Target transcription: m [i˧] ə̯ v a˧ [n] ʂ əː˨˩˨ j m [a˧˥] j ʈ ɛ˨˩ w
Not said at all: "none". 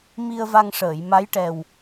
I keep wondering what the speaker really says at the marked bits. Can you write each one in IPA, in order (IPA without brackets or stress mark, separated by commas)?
i˧, ŋ, a˧˥